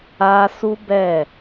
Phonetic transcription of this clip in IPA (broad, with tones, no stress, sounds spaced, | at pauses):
a˦ s u˦ b ɛ˦˨